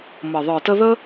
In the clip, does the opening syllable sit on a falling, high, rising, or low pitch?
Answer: low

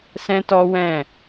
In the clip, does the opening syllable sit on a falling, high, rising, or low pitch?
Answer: high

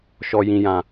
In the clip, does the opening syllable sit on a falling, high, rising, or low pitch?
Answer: low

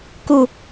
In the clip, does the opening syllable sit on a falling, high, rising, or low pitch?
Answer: falling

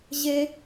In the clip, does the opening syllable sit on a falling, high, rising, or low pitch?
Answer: high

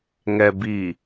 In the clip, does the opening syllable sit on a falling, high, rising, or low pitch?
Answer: low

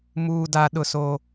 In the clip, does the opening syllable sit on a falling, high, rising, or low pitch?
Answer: low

